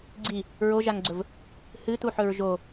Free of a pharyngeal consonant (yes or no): no